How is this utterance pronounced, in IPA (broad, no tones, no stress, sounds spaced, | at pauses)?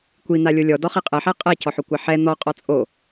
kʷ i n̪ a lʲ o lʲ ɔ d ɔ χ i qʼ ɛ ħ æ qʼ ɛ c ɔ ħ o kʷ a ħ ɛ n̪ ɔ qʼ ɔ t͡sʼ o